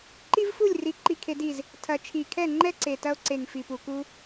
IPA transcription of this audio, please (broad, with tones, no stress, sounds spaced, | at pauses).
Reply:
ǃ i˥ v f u˥˨ lʲ r i˨˩ ǃ i˥˨ kʰ e˥ d i˥˨ z | tʰ ɐ˨˩ t͡ʃʰ i˨˩ kʰ ɛ˥˨ ŋ͡ǃ ɛ˥ ǀ e˨˩ t ɐ˥ o̯ ǀ e˨˩ ŋ f i˨˩ p u˨˩ k u˥